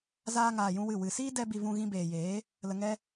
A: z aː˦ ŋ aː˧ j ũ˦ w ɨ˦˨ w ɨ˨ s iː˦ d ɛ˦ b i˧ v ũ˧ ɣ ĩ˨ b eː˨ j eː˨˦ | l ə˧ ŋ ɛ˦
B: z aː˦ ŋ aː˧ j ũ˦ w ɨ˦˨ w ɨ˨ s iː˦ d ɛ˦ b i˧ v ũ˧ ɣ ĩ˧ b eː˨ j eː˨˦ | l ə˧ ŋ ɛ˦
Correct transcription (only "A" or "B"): B